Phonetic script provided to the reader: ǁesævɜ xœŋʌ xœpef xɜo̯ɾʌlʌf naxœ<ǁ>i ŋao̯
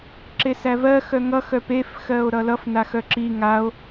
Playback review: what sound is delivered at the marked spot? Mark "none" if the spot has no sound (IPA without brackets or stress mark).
ǁ